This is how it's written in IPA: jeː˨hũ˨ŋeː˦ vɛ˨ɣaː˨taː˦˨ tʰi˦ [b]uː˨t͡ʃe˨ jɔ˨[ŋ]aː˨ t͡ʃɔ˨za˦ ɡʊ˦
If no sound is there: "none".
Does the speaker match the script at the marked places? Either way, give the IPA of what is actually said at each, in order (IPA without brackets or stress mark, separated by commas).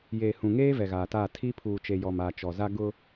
pʰ, m